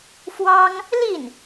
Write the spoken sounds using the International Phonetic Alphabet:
fwɑ˥ŋ | li˥˩n

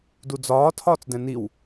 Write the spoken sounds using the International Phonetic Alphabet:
dud͡zɒː tʰɒːt͡sdɛ̃niw

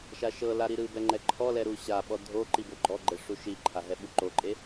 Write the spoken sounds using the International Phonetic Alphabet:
ʃaʃɤla ɾiɾɯbɛ ŋ͡ǃɛǃʰɔlɛ ɾuɕaɓɔ dʱo ǃiboɡ͡ǃɔɡ͡ǃɛ ʂuʃiǃʰa ɦɛɓuǃoǃʼe

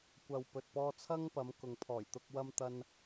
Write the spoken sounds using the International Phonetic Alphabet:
kʷɐ˨wpɵ˨t̚pɔː˧t͡sʰɐ˥ŋ pɐ˨˧mkʊ˨ŋpʰɔː˨˩jt̪ʊ˧k̚ wɐ˧mt̪ɐ˧n

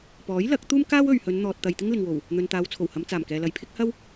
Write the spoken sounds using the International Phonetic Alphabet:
pɔː˨˥jlɐ˨˥k̚ t̪uː˥mkaː˥w ɵ˨ɥhɵ˨˧n n̪ɔː˨t̚t̪ɐ˨j t̪ɪ˥ŋlɪ˨ŋwo˨˩w | n̪ɵ˨nt̪aː˨˧wt͡sʰo˨˩whɐ˨˧m t͡saː˨˩mkɛː˨lɐ˨jpʰɪ˥k̚ hɐ˥w

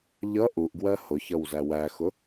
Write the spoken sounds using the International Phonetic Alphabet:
ʎʌ ʔuʔɡwɜ hʊçʌw zæwæxʊ

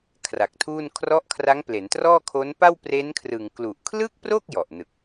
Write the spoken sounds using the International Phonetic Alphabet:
kʰra˨˩k̚tʰuː˥˩n kʰrɔ˦˥ʔkʰra˦˥ŋ ple˩˦ntrɔː˥˩kʰo˦˥n pa˥˩wpre˦˥nkʰrɯ˨˩ŋ klu˨˩ʔkʰlɯ˥˩k̚pro˥˩k̚ jɔ˨˩ʔnɯ˨˩k̚

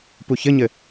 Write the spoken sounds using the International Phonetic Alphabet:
puçɘɲɘ

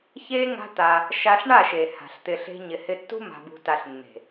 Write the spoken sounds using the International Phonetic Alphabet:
çe˦ ŋa̤˦t̪a˧ | ʃa˧ɬɳa˦˨ʃe˨ ha̤˨ɬt̪ɪ˧ɬe̤˦ ɲɪ˨hɪ˧tːṳ˦ ma̤˧bṳ˧ta˧ɬ nːe̤˨

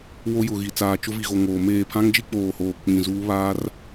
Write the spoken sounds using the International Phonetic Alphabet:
wo˦jʊ˨ɣi˨ t͡saː˨t͡ʃʊ˦vi˨ɣo˨ ŋoː˨meː˦˨ pʰã˦ŋd͡ʒi˦k͡poː˨hoː˨ k͡pĩ˨zuː˦ βaː˦r

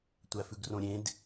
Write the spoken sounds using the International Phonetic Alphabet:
tʷæfʉɡrõɾʲẽd

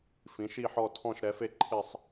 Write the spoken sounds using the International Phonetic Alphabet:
fĩ˨˥ʃi˥˧ħɔ˥˧ tʰɔ̃˥˧ʃɾɛ˨˥fe˥˧ ǃʰɪ˥˧sˤ

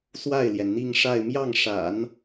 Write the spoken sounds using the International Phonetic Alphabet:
swa˥˩ɪ̯ljɛ˩nn̪i˥˧ŋʂa˥˧ɪ̯ mjɑ˥˩ŋʂa̰˨˩˦n

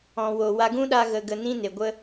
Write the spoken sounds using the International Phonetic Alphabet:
ɔ̃˨wo˨wa˧ ɡũ˦ɗa˧ ɣə˧ɡə˧nĩ˦ne˨ ɡʷə˧

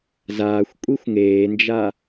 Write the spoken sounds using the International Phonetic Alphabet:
zaːxʷ kʷʼixʷŋeːnd͡ʒa

